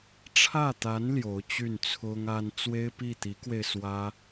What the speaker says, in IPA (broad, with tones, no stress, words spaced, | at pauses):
ʈ͡ʂʰä˥˩t̪a˧˥n ljo˧˥ʊ̯t͡ɕy˥˩nt͡sʰʊ˥ŋ a˥n t͡swe˥ɪ̯pi˥˩t̪i˧˥kwe˧ɪ̯ swä˥